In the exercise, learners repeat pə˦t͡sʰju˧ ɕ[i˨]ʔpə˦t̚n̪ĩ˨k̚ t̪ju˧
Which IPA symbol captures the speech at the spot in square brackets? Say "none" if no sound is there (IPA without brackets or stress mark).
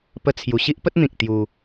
i˦